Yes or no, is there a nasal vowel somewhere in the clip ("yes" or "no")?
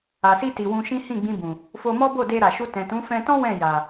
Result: yes